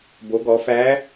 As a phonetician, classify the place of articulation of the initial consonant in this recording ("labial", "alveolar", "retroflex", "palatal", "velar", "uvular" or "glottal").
labial